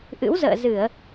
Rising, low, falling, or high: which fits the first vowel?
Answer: rising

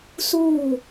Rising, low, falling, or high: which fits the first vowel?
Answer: falling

